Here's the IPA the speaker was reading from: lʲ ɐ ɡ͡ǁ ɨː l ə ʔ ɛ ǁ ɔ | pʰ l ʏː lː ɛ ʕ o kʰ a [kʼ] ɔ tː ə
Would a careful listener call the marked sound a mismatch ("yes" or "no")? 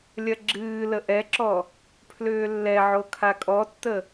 no